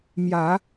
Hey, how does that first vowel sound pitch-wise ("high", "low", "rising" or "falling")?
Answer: low